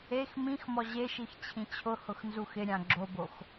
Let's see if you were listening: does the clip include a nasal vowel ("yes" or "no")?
yes